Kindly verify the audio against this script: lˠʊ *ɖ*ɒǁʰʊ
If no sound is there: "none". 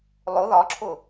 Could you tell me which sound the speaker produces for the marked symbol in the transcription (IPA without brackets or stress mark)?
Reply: ð